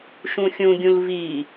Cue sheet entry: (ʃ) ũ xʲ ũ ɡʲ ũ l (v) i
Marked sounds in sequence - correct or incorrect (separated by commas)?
correct, correct